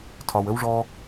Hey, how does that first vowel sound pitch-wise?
low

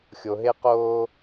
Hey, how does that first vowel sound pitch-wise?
low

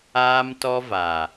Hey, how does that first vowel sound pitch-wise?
high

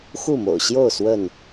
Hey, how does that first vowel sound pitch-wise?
falling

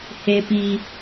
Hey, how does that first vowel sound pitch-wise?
high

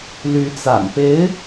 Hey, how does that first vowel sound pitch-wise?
rising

